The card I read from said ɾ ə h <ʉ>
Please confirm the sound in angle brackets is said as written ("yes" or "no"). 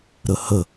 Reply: no